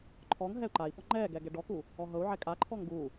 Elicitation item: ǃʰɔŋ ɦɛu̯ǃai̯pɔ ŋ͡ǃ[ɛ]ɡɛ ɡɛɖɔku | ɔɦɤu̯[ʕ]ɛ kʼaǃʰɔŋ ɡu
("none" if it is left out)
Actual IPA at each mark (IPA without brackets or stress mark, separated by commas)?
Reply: ɛ, ʕ